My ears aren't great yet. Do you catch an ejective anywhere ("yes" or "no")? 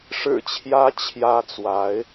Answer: no